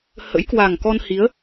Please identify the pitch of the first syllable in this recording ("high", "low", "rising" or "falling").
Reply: rising